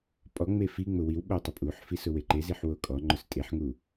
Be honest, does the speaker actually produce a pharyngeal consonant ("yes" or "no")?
yes